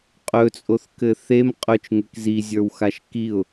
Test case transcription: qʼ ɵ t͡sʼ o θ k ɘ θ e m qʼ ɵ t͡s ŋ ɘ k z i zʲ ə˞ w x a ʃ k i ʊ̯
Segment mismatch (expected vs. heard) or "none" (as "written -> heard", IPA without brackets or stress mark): t͡s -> t͡ʃ